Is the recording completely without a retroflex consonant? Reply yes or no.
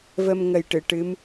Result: no